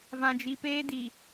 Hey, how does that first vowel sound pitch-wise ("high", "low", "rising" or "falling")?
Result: low